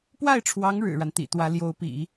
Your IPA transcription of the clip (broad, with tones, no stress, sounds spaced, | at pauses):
p w a˥˩ ɪ̯ ʈ͡ʂʰ w ɑ˧˥ ŋ ɻ ɻ̩˨˩ ɻ a˦ n t̪ ḭ˨˩ t̪ w ä˧˥ l j o˧˥ ʊ̯ p ḭ˨˩˦